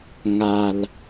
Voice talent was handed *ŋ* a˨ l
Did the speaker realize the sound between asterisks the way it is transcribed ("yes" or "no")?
yes